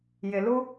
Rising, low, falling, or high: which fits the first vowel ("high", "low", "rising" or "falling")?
low